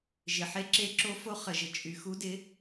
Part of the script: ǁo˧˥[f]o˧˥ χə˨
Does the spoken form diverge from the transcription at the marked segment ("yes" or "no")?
no